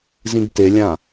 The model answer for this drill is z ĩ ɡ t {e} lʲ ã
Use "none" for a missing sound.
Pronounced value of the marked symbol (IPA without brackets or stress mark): e